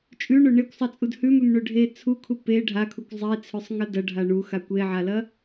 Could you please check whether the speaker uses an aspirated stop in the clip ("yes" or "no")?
yes